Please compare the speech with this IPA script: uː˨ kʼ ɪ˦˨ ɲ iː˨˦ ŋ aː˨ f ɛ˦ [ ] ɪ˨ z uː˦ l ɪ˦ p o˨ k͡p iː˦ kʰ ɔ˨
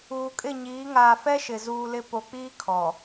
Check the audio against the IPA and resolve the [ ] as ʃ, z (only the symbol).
ʃ